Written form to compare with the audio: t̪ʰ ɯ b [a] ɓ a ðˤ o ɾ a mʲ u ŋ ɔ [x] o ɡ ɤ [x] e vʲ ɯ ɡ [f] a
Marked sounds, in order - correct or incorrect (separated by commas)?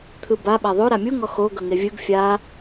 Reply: correct, correct, incorrect, incorrect